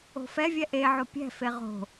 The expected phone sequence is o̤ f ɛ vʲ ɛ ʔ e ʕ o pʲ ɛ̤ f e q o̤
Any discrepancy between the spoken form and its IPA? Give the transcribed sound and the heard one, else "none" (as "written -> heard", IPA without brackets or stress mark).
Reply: q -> ʁ